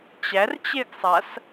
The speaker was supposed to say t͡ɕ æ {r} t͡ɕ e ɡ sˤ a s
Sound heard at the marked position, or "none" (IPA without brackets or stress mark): r